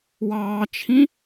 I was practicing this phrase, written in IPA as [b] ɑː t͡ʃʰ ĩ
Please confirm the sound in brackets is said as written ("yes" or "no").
no